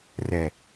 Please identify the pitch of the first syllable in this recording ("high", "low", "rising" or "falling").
low